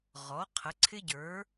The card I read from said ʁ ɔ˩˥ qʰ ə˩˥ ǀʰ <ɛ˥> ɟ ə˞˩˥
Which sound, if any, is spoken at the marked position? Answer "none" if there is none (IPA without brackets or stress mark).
ɪ˥